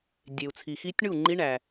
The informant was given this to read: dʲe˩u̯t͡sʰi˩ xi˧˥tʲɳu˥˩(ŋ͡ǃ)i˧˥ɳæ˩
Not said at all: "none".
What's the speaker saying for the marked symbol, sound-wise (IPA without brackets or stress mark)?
ŋ͡ǃ